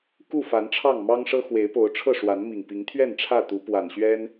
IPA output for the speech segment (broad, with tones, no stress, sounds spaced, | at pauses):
k u˥˨ f a˨˦ n ʈ͡ʂʰ ɑ˥˨ ŋ m ɑ˦ ŋ ʂ ɤ˦ x w e˨˦ ɪ̯ p o˨˦ ʊ̯ ʈ͡ʂʰ ɤ˥˨ ʂ w a˨˦ n m i˨˩ ŋ p i˨˦ ŋ t̪ʰ ɥ ɛ˥˨ n ʈ͡ʂʰ ä˥˨ t̪ u˨˦ p w a˨˩ n ɕ ɥ ɛ˦ n